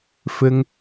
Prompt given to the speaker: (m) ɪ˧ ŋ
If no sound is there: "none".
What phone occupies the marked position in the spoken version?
f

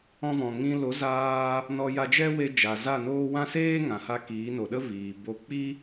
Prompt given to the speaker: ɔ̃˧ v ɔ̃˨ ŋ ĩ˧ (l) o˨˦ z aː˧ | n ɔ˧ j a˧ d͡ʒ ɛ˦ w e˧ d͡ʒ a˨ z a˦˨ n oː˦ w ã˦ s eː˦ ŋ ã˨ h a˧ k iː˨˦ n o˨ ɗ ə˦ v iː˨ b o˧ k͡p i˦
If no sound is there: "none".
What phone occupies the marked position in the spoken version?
l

